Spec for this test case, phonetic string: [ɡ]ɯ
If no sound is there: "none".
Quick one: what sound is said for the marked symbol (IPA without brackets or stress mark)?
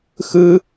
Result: x